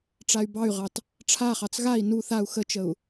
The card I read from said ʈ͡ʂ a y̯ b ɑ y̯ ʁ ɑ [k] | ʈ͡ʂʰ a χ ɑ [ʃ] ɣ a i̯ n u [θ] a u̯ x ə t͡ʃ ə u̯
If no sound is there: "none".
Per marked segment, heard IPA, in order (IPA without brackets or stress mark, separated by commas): t, t͡s, θ